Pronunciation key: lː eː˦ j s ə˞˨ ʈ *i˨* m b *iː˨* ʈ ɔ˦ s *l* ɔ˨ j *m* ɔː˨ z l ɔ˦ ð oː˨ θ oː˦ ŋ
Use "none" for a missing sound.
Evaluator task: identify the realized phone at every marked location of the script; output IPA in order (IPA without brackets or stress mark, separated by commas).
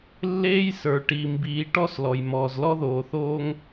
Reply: i˨, iː˨, l, m